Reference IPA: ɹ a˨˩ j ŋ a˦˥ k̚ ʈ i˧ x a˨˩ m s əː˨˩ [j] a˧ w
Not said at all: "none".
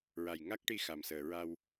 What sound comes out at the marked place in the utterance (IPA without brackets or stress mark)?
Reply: ɹ